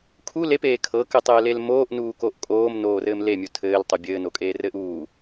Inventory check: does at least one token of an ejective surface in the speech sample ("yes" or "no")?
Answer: yes